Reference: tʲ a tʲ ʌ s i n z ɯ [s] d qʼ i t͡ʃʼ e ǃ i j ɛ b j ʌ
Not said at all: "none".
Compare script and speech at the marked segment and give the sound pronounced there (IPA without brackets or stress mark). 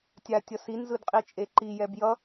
none